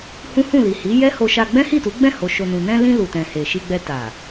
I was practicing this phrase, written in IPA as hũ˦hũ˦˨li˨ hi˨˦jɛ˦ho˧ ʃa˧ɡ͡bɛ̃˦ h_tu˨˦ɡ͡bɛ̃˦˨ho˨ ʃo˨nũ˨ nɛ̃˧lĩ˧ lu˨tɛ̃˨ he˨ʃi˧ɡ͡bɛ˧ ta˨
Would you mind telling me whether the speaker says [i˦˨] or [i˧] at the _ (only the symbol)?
i˦˨